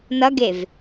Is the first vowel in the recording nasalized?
no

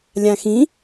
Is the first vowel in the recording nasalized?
yes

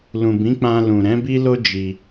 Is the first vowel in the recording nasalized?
yes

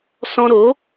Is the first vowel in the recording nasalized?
yes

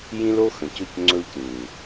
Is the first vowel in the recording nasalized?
yes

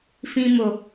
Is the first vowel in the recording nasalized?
yes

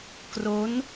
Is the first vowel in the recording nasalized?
no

